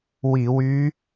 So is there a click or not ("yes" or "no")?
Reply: no